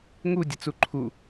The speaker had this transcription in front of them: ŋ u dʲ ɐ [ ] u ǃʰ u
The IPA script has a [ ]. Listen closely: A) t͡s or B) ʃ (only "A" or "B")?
A